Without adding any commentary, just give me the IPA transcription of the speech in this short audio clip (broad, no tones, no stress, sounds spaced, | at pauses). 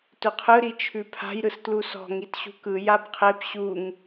t ɵ qʰ ɯ ɾ i t͡ʃʰ ʉ pʰ a̤ j ɾ ɯ s t l u s ɔ̤ ŋ i t ɕ ṳ k ɯ j a b qʰ e p ɕ u ŋ